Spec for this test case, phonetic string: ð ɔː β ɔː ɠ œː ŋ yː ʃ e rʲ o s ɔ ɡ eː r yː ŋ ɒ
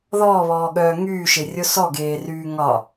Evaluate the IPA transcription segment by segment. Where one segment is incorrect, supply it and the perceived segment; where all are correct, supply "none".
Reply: none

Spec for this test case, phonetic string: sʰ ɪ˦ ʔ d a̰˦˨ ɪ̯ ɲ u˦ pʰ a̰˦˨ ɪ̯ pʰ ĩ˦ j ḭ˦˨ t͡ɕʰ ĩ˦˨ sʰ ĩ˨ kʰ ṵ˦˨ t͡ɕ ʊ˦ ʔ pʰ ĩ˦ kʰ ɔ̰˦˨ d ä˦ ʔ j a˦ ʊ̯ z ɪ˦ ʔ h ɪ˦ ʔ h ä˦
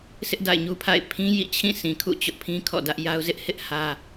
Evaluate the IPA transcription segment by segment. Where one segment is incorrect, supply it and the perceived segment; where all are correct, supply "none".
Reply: none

